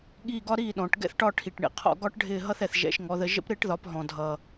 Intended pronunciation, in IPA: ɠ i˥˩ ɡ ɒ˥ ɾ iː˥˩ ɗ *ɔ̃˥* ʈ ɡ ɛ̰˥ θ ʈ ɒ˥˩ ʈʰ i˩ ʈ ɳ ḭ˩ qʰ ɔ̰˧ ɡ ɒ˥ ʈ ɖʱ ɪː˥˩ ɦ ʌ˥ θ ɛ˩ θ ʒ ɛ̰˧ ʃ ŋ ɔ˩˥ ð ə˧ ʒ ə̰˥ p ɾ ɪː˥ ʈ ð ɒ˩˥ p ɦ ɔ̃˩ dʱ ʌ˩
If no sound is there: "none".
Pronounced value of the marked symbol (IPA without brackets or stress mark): ɔ̃˩